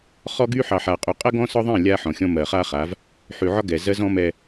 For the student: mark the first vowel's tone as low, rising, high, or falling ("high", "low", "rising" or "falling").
high